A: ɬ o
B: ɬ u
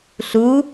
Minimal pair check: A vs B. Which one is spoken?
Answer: B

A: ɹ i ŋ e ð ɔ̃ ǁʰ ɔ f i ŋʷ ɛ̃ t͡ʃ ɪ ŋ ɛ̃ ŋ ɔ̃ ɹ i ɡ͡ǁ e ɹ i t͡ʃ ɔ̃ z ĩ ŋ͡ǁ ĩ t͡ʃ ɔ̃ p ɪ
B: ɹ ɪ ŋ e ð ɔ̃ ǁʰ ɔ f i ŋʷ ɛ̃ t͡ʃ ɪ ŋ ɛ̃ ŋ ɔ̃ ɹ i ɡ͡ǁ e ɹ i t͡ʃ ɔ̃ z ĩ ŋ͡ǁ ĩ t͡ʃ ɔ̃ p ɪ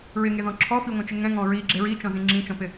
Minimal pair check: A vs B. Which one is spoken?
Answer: B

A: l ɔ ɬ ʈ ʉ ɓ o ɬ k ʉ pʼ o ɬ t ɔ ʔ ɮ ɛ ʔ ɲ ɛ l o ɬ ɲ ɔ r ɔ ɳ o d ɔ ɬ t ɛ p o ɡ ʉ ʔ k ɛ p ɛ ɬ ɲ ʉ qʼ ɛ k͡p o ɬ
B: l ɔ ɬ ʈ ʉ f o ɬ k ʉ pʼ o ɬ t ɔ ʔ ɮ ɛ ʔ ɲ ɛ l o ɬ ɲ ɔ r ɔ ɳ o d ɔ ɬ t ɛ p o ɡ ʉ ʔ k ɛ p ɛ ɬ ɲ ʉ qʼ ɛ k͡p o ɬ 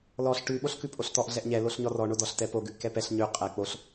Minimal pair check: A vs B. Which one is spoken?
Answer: A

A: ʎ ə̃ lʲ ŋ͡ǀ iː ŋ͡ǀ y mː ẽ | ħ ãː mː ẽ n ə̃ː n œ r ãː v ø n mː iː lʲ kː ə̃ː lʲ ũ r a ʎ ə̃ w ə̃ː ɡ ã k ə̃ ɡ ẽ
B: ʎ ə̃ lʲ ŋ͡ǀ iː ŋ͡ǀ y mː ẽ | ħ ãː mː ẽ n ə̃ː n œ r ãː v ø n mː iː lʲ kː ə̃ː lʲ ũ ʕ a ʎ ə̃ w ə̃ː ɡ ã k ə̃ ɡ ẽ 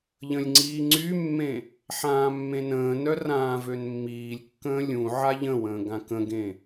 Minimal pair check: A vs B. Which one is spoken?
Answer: B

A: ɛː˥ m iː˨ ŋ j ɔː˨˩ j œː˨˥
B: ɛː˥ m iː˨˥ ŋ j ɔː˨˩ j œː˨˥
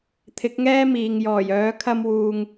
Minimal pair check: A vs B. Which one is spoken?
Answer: A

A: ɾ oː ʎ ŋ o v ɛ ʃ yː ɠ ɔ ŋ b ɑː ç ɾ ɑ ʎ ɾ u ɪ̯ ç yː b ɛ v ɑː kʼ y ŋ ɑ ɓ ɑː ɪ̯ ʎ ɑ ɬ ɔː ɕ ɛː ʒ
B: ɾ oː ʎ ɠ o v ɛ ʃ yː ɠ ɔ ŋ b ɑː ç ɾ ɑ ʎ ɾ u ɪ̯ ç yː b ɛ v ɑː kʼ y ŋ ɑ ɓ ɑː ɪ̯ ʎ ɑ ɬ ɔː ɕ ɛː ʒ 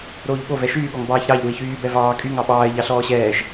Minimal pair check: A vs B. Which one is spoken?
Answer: B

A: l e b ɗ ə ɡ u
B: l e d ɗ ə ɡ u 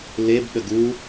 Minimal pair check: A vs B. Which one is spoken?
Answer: A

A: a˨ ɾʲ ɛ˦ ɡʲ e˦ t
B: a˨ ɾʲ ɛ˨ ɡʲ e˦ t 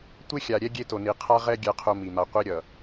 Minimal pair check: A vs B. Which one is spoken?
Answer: A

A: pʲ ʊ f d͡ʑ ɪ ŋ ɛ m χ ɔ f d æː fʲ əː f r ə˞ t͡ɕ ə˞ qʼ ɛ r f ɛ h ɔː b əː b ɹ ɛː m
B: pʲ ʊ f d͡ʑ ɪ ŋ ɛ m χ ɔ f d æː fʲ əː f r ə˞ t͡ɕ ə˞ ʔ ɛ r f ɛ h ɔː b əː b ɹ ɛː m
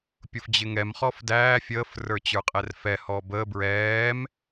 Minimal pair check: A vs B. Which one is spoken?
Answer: A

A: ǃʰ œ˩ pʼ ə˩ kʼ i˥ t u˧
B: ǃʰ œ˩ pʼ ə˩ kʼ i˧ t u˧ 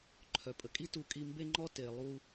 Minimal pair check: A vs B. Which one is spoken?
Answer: A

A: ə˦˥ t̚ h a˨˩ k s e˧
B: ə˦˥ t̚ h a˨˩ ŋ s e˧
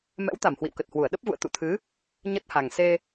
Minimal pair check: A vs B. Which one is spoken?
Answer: B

